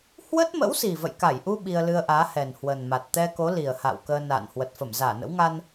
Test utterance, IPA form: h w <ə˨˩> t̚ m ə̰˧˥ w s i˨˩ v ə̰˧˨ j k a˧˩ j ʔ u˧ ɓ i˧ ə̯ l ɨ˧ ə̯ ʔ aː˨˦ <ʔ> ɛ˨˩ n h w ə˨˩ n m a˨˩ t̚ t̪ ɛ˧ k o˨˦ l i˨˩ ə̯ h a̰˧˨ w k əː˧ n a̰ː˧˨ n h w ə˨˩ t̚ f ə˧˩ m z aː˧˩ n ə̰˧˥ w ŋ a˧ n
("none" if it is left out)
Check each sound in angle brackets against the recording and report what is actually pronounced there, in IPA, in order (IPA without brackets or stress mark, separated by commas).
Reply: ə˦˥, h